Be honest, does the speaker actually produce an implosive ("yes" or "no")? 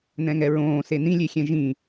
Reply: no